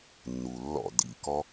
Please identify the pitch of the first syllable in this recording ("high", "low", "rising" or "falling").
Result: low